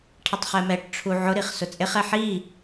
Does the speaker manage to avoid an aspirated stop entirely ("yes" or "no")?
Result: no